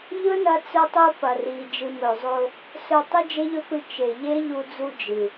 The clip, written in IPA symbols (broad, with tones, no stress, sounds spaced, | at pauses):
ʎ ɵ˦ n ɐ˧ t͡s ɵ˧ tˤ u˧ p ɐ˨ r i˨ d͡ʒ ɨ˨ m ɵ˨ zˤ o˧ | s ɵ˧ tˤ ɨ˦ d͡ʒ e˦ ʎ ɵ˦ p ɨ˧ t͡ʃ e˨ ʎ e˦ ʎ u˧ d͡z u˧ d͡ʒ ɨ˨